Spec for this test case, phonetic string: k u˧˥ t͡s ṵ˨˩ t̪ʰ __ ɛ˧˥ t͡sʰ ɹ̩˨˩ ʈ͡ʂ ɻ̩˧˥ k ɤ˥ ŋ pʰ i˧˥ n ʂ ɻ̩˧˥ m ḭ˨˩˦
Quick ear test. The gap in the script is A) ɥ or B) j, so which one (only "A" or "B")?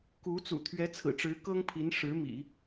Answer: A